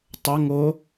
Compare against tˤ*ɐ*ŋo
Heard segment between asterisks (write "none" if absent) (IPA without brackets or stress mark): ɐ